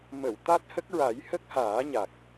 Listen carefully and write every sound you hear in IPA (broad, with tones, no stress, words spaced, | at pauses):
mə˨˩˨w t̪a˦˥t̚hə˦˥k̚ɹa˨˩˦j hə˦˥k̚haː˨˩˦ɲa˨˩k̚